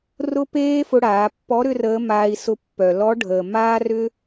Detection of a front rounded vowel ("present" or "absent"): present